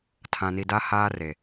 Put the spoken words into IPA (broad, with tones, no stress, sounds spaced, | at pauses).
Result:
tʰ ã˨ n i˨ d a˦ h aː˦ r e˨